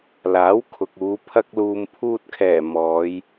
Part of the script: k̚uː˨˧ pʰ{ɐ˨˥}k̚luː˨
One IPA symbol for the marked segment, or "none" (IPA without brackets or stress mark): ɐ˧